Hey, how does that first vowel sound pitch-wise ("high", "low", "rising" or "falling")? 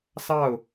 falling